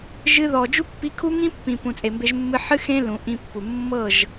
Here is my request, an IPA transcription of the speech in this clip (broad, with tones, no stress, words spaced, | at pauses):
ʒɨ˧ðɔ˨ d͡ʒu˦pːi˧kʰu˦ ŋĩ˦pːĩ˨ pũ˨t͡sʼe˨mbe˧ʒ mːɨ˧ħɨ˦ xẽ˦lũ˨ ʔĩ˧pːu˨ mːɤ˦˨ʒ